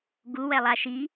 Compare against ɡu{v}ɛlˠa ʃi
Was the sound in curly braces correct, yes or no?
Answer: no